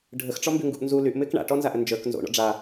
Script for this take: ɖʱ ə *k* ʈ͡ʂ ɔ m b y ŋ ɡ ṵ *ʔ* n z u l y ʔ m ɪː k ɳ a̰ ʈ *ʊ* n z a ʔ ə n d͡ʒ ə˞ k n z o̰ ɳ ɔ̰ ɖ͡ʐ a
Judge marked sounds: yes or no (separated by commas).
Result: no, yes, no